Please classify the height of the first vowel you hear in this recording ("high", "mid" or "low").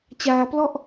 low